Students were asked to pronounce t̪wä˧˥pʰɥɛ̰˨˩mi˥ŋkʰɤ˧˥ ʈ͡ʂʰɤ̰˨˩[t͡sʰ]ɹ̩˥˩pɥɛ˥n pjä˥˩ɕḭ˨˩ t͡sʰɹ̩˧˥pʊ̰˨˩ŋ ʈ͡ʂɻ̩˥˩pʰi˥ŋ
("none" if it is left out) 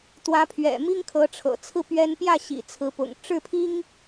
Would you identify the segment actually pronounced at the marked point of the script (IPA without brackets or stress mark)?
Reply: t͡sʰ